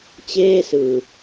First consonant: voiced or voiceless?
voiceless